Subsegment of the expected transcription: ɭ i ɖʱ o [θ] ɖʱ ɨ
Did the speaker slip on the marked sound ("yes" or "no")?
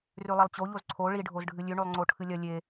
yes